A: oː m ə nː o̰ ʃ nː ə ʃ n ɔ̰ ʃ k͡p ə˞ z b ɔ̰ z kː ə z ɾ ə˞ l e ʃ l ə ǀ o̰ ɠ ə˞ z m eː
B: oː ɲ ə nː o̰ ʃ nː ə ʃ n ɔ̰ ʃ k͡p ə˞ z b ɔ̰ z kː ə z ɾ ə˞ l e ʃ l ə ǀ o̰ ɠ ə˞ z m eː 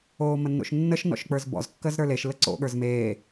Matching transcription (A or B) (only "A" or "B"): A